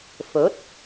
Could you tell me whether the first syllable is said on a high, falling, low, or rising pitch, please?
rising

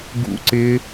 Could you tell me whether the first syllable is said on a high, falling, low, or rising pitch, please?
high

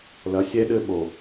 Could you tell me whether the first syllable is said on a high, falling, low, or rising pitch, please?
rising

